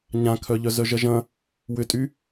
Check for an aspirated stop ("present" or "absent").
present